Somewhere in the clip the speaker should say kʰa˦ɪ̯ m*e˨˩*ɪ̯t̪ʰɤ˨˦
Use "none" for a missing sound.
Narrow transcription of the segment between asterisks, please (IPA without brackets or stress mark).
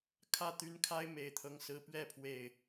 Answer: e˨˩